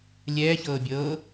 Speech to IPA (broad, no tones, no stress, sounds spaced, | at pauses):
lʲ ɛː ç ɤː bʲ ɤː